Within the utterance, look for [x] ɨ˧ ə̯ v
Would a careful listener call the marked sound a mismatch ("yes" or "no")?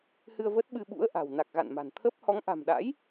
yes